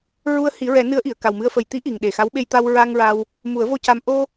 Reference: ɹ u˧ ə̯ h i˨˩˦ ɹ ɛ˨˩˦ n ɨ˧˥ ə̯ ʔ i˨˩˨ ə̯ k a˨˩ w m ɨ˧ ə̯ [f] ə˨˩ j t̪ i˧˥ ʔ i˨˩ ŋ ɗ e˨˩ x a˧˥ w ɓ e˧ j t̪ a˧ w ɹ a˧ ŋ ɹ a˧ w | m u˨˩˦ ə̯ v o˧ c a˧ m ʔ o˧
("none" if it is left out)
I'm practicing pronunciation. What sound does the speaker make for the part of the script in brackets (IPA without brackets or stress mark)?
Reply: f